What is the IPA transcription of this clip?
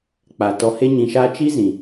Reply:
k͡p a˨ t ɔ˧ h e˦ ɲ ĩ˧ ʃ aː˦ t͡ʃ i˦ z ĩ˨

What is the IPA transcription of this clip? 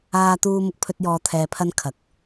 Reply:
aː˥ t̪ uː˥ m ʊ˧ k̚ pʰ ɵ˥ t̚ j ɔː˧ t̪ʰ ɛː˧ pʰ ɐ˥ n kʰ ɐ˨˥ k̚

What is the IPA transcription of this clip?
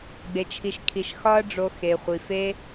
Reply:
ɡ͡b e˧ t͡ʃʰ i˧ ʃ kʰ i˧ ʃ x ɒ˦ ɐ̯ ɖ͡ʐ o˧ x e˧ χʷ i˧ f e˦

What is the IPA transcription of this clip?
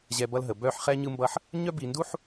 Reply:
ʑ ɛ˨ b ʌ˦ l ɦ ə˨ b œ˦˨ ħ χ ɛ˦ ɲ ɯ˦ m b ʌ˦ ħ | ɲ œ˦ b i˨ n d u˦ ħ

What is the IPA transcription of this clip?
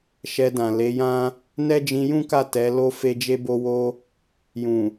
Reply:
ʃ ɛ˧ d ã˨ l e˨˦ j ã˦ | n ɛ˦ d͡ʒ ĩ˧ j ũ˦ k a˦˨ t ɛ˨˦ l o˦ f e˦ d͡ʒ e˦ b o˦ w o˦ | j ũ˨

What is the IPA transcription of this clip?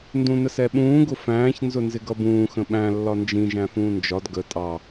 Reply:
n d ũ n ə s ɛ ɓ ũː ɡ ʊ f æ̃ː ç n z ʊ n z ɪ ɡ ʌ b ũː x ə̃ ɓ æ̃ lː ɒ n d͡ʒ ĩ ʒ æ̃ f ũː n d͡ʒ ɒ d ɡ ə tʼ ɑ

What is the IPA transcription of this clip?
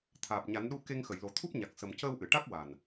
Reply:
t̪ʰ aː˨˩ p̚ ɲ a˨˩˦ n ɗ u˧ k e˧ ŋ x ə˨˩˨ j l o˨˩ t̪ʰ u˦˥ p̚ ɲ a˨˩ k̚ s ə˨˩ m c əː˧ w ʔ ɨ˨˩˨ ʈ a˦˥ k̚ w a˨˩ n

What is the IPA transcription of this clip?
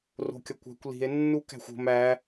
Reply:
r o̤ kʲ ɒ kʷ æ̤ kʷ l i̤ e̯ nː u k æ̤ xʷ o̤ m æ

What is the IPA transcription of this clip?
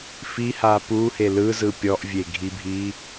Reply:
f i h a p u h e l ɯ z ɯ pʲ ɔ ʔ vʲ e ɡʱ i bʱ i

